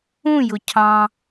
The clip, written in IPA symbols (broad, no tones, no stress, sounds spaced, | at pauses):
ũ j ʊ cʰ ɑ̃